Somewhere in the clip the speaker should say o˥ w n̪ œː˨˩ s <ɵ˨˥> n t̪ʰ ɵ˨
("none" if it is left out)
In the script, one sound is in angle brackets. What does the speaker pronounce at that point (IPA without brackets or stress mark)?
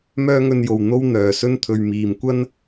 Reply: ɵ˥